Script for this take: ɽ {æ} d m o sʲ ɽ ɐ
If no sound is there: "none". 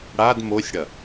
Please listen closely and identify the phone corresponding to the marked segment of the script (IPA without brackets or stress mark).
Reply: a